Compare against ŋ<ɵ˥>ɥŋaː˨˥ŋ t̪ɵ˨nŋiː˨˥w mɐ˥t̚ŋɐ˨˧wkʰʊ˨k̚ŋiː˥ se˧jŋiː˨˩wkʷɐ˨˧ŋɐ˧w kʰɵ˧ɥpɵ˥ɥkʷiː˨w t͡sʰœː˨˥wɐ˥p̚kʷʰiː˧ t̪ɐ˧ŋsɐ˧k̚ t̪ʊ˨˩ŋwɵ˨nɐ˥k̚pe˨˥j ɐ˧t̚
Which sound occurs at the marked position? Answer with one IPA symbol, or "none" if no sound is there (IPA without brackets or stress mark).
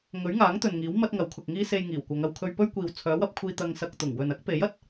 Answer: ɵ˨˥